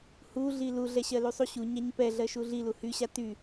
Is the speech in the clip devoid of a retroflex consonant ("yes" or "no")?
yes